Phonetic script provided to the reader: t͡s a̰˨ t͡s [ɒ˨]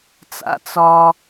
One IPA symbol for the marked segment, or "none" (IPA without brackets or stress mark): ɒ˨